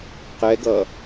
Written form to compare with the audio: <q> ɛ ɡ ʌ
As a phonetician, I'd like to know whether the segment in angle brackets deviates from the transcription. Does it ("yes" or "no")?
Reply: no